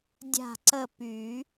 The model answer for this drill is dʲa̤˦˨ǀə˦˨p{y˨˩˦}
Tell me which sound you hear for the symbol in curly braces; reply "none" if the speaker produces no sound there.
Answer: y˨˩˦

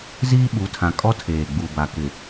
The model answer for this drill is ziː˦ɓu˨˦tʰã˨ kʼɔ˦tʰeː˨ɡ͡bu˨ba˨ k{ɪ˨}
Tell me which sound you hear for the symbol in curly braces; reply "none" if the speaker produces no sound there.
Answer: ɪ˨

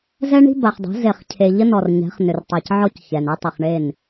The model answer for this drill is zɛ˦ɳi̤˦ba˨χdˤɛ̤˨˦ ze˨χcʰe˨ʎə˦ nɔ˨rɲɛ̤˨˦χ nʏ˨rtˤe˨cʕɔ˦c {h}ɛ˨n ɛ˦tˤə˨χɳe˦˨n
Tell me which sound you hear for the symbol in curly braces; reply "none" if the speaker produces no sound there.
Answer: ç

